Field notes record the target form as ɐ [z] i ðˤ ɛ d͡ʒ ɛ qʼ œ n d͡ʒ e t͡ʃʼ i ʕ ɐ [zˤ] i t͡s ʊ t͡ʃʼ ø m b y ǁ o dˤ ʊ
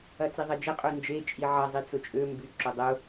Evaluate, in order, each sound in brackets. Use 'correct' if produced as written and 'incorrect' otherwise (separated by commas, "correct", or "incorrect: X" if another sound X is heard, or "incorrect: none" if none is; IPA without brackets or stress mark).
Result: incorrect: t͡s, correct